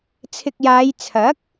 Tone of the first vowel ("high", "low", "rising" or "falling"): low